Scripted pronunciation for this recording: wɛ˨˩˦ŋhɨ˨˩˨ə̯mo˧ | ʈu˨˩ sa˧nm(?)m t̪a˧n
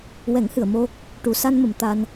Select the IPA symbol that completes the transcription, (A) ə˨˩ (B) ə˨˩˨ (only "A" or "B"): B